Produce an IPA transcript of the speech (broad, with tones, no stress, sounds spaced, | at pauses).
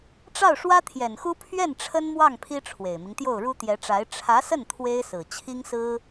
ʈ͡ʂ ɑ˥˩ ʊ̯ ʂ w ä˥ t̪ʰ j ɛ˨˩ n x u˥ pʰ ɥ ɛ˥˩ n ʈ͡ʂʰ ə˥ n m w ɑ˥˩ ŋ pʰ i˥ ʈ͡ʂʰ w e˨˩ ɪ̯ m i˦ ŋ t̪ j o˥˩ ʊ̯ ɻ u˥ t̪ j ɛ˧˥ ʈ͡ʂ a˧˥ ɪ̯ ʈ͡ʂʰ ä˧˥ s ə˥˩ n t̪ʰ w e˥ ɪ̯ s ɹ̩˨˩ t͡ɕʰ i˥ ŋ s ɹ̩˥